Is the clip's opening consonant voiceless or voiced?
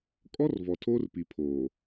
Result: voiceless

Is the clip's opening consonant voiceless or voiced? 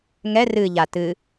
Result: voiced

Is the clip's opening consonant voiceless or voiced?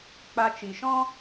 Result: voiceless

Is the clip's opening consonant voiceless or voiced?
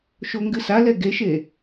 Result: voiceless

